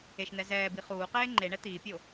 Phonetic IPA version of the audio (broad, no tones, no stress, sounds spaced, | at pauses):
e ʃ n̪ ɛ z ɛː b i χ uː q eː ŋ͡ǃ e ɳ ɛ t̪ iː pʲ o